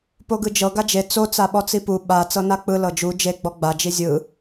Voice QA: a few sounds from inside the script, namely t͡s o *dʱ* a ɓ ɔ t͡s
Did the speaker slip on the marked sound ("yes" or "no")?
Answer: yes